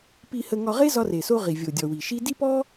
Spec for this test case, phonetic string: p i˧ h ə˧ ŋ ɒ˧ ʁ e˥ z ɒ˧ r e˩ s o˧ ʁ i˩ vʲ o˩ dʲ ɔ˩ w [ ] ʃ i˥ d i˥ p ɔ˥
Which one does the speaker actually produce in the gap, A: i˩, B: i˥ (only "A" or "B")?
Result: A